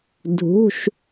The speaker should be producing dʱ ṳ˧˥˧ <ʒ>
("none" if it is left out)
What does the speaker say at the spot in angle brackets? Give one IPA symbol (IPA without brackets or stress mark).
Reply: ʃ